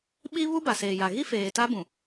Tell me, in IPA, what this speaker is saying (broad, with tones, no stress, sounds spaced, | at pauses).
ɓ i˦ β u˦ b a˨ s eː˨ j a˨ ɣ i˦ f eː˨ t a˦ b ũ˨